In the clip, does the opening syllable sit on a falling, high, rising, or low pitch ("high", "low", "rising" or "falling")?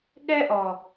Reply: high